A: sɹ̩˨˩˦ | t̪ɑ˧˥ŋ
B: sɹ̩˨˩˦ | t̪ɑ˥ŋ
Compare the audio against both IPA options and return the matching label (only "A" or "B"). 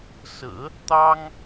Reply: B